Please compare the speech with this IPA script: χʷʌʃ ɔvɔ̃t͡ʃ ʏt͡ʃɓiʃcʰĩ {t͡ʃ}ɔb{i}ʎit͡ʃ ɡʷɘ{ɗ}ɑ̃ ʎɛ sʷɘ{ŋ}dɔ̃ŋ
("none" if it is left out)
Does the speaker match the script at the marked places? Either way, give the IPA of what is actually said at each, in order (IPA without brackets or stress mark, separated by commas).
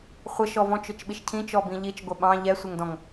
t͡ʃ, ĩ, ɓ, ŋ